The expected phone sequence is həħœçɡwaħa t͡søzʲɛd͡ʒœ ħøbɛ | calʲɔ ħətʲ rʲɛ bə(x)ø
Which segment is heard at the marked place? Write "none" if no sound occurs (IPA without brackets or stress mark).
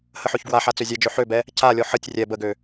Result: ɡ